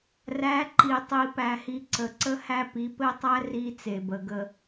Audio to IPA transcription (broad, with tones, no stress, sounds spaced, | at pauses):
r æ˨˦ ǃ i˨ tˤ i˨ p æ˨ h i˨ ǀ ə˨ ǀ ə˦ h æ˦ p i˨˦ p ɘ˦˨ tˤ æ˦ r i˦ t͡s e˨ b ə˨ ɡ ə˦